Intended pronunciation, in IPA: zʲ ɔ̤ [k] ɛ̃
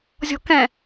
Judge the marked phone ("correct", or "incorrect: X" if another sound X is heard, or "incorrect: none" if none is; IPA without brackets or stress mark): correct